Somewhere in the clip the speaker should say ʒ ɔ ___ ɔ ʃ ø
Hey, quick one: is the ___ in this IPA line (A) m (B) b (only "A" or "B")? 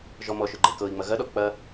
A